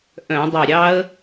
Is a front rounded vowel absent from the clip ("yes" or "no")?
no